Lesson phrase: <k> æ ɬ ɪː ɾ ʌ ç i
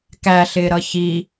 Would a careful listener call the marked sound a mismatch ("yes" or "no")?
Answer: no